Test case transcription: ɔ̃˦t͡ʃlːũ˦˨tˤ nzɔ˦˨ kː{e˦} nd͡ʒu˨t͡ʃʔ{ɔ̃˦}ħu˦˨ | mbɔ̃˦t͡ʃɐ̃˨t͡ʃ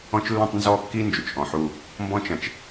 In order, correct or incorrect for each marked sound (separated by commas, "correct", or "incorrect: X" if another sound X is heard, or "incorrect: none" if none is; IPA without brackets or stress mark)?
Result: incorrect: i˦, incorrect: ɔ̃˨